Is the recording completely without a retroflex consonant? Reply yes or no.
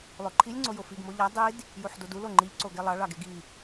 no